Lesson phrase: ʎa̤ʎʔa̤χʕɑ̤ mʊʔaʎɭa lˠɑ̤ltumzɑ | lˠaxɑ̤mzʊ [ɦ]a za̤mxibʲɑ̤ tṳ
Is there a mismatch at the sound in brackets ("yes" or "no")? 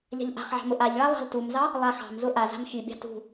yes